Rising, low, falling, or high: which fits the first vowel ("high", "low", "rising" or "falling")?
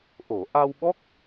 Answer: low